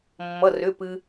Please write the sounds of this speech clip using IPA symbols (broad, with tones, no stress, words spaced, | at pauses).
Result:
mːʌ˩˧˩rʏ˩˧˩ pɨ˧